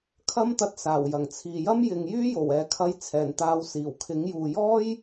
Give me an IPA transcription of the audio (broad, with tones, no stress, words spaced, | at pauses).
kʰɐ˥mt̪ɐ˧t̚ saː˨˩wjɐ˨˩ŋt͡sʰiː˨jɐ˥m jɪ˨ŋ jyː˥jo˨˩w ɛː˨kʰɐ˧j t͡sʰɛː˨˩nt̪aː˨˧w siː˨˩wkʰɪ˨˥ŋ juː˨jɔː˥j